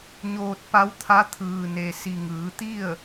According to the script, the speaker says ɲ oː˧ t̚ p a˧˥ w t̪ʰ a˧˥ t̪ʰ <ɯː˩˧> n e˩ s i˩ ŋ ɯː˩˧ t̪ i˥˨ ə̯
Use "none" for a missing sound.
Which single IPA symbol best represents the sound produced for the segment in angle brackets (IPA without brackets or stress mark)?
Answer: ɯː˩